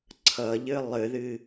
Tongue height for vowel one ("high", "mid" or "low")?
mid